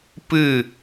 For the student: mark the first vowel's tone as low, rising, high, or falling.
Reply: falling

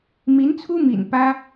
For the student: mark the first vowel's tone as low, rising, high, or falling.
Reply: rising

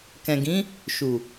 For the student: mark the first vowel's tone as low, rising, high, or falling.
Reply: low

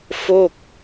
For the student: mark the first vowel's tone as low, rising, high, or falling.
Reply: falling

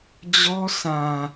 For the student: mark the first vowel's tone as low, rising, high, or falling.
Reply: high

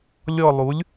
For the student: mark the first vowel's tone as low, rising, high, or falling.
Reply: falling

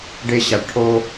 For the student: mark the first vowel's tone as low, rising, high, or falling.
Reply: high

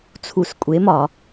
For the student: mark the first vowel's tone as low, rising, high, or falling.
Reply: low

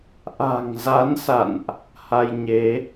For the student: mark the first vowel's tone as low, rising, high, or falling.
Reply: low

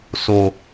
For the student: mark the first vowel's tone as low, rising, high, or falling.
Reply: low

